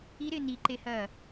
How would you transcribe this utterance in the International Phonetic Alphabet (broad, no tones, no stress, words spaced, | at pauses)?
iɾɪː niǃehɐː